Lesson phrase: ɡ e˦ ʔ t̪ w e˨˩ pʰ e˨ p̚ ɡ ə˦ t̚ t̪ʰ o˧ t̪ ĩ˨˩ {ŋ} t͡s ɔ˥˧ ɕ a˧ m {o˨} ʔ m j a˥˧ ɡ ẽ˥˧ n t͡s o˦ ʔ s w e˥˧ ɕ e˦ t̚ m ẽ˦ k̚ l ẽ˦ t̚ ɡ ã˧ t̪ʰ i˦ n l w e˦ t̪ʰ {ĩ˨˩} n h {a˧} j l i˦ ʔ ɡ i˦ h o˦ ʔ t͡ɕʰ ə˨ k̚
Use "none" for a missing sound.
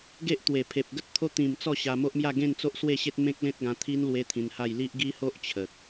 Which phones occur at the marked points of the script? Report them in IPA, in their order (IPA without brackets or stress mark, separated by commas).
m, o˦, ĩ˧, a˥˧